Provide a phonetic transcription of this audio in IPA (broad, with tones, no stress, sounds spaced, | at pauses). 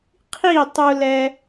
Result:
qʰ i˥˩ tˤ u˧ l ɛ˧